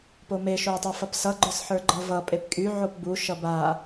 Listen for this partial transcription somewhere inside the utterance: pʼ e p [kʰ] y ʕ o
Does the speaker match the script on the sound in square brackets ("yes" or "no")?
no